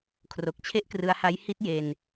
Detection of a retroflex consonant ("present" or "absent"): absent